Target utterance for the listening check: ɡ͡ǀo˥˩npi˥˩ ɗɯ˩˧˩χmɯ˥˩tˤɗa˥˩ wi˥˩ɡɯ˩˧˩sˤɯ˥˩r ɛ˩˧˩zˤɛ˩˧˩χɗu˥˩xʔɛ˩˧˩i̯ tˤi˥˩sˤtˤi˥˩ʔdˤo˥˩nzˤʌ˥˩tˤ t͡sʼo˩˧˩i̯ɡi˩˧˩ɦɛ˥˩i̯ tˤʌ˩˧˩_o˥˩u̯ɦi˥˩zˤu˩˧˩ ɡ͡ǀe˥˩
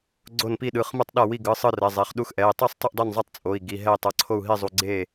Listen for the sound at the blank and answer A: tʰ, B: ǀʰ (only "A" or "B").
B